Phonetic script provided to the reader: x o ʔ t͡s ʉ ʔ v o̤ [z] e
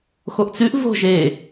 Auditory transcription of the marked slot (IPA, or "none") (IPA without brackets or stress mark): ʒ